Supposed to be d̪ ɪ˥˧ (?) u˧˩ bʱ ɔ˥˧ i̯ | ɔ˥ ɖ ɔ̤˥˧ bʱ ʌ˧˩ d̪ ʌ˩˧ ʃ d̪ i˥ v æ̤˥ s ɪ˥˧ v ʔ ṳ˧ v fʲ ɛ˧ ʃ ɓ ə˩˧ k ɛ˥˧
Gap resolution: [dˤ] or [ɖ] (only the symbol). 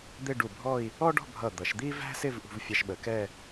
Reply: ɖ